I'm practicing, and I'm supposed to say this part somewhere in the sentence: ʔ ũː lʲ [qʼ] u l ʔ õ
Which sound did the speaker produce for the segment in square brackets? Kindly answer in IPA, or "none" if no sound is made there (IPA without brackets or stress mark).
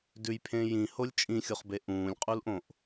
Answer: qʼ